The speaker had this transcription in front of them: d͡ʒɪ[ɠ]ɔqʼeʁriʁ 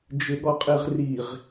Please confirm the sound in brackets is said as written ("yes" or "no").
yes